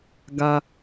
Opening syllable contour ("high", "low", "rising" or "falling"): high